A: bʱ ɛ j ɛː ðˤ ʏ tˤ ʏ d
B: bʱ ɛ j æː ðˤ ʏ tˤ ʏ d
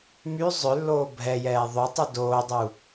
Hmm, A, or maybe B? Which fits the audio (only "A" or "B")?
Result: A